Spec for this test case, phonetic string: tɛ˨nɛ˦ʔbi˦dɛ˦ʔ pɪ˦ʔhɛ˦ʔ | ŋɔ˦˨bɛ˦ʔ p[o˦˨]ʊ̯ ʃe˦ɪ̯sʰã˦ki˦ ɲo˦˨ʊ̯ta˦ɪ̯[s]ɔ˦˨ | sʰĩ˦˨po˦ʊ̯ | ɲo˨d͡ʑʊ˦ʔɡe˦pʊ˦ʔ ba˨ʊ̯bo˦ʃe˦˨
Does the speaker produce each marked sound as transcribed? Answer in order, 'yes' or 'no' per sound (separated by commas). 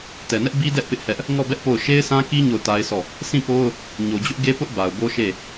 yes, yes